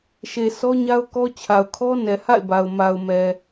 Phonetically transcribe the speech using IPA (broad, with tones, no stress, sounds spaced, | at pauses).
ʃ e˨ sʰ ɔ˦ ɲ a˦ ʊ̯ k ɔ˦ t͡ɕʰ a˨ ʊ̯ kʰ ɔ˦ n ɛ˨ h a̰˦˨ ɪ̯ b a˨ ʊ̯ m a˨ ʊ̯ m ɛ˨